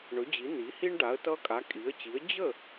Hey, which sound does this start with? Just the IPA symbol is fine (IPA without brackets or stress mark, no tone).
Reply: ɳ